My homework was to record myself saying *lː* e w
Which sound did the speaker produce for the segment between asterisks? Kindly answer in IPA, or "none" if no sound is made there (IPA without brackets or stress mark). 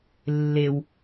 lː